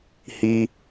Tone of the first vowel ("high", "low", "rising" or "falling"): high